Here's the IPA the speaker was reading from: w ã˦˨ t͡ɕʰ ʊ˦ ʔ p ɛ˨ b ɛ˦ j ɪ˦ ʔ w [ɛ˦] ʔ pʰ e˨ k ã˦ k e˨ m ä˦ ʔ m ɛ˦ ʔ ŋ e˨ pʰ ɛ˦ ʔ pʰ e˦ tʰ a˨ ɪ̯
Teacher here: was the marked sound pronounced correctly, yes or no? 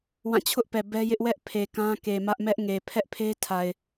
yes